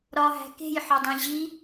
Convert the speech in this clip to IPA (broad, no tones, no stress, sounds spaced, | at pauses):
ɾ ɒ ɦ æ̤ k e̤ j ħ ɒ dˤ ẽ ʑ i